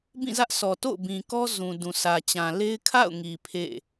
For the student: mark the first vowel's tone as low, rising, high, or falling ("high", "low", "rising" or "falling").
falling